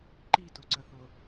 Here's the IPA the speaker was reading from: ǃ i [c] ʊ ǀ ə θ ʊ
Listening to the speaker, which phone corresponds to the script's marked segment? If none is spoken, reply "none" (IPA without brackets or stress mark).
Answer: t